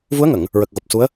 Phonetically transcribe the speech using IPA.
vu˧˥ə̯ŋə˨˩˨ŋ | ɹə˨˩k̚ɣo˨˩p̚su˧˥ə̯

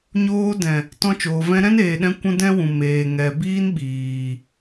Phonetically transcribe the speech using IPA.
ɲoː˧dɛ̃˨ | tɔ̃˧t͡ʃoː˨ vɛ̃˧ɾɛ̃˦neː˨ɗɛ̃˧ kʷũ˦dɛ̃˦wũ˨ meː˨ ŋɛ˨biː˦n ɓiː˨

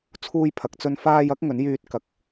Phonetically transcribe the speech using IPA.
t͡sʰuː˧jpʰɐ˨k̚t͡sɵ˧n faː˧jɐ˨˥k̚ ŋɵ˨˥njyː˧t̚kɐ˨k̚

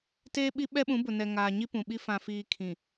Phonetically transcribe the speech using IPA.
teː˦ɓi˦ ɓɛ˦ɓũ˨˦bʊ˨ nɛ˨ ŋaː˨ ɲi˦pũ˨ɓi˦ fã˨fiː˨ kʰĩ˨

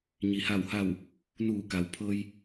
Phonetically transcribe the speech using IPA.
ɲi˩ha˧˩wha˧˩w | nuː˧˩ka˩w pʰɤː˧j

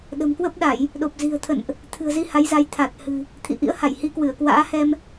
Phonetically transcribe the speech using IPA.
ɗə̤˨˩mkwə˦˥p̚ɗa˧˩˨j | ɗo˨˩p̚zi̤˨˩ə̯ t̪ʰə̰˧˨nʔ | t̪ʰɨ̤˨˩ə̯zi˧ ha˨˦jza˨˦j t̪ʰa˨˩t̚hɨ̤˨˩ | t̪ʰḭ˧˨ʔḭ˧˥ə̯ha˧˩j hi˨˦kwɨ˧˩ə̯kwa̰ː˧˥hɛ˧m

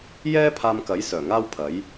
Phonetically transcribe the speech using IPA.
jɛː˥pʰaː˧mkɐ˨˥j sœː˨˩ŋaː˥wpʰɐ˨˥j

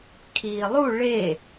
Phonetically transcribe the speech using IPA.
kʰiːlˠu ɭe

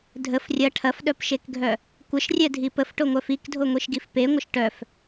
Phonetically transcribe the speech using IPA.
dʱəf rʲɐ ʈʰɐfɗœpʃekɡʱœ | kʷəʃrʲɛdʱi pəfʈoŋʷœf ikdʱoŋʷiʃɡif peŋʷəʃ ʈœf

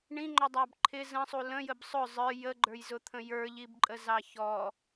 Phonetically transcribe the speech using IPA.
ɳĩŋ͡ǃɔdˤɑb ǃʰɪ zə̃sˤu lə̃jəb sˤʊ zˤə˞ jəɡ͡ǃə˞jzʊt̪ʰə̃ jə˞ʎibǃʼəzɑ çɔ

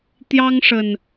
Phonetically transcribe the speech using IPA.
t̪jɑ˦ŋʂə˨˩n

